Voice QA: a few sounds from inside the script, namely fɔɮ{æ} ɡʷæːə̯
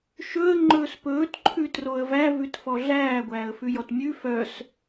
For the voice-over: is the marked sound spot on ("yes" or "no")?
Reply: no